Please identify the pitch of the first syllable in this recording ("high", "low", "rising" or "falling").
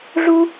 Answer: high